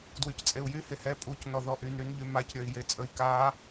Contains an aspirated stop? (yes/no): no